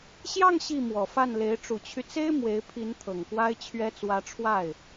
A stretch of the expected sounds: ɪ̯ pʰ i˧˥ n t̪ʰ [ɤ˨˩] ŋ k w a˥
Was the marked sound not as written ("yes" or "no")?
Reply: no